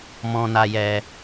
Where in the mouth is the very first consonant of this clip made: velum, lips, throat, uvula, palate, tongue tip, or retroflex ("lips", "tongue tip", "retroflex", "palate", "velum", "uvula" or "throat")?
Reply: lips